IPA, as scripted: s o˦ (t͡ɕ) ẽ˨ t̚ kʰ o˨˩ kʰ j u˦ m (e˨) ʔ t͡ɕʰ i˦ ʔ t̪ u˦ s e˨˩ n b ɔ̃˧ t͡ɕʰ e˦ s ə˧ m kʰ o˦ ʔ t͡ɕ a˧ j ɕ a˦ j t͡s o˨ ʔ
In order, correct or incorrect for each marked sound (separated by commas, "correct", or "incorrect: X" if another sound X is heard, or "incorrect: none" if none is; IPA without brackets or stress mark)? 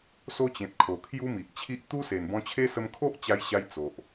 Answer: correct, incorrect: i˨